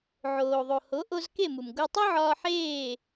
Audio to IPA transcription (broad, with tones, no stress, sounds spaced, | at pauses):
ʕ oː˩ ðˤ o˩ h o˩˥ ʔ o˧ z k e˥˩ m u˩ m ɡ o˧ tˤ o˥ ʕ ɒː˧ ħ eː˥˩